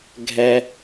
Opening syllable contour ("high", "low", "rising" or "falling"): low